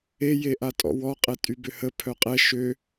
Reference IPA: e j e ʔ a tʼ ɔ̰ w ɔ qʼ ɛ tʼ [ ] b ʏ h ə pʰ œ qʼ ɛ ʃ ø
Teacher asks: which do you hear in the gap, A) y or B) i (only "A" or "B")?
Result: A